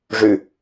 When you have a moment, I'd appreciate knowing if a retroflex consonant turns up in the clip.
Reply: yes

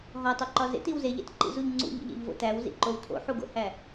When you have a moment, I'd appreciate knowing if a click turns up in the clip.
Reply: yes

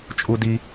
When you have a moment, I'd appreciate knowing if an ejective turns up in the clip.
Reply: yes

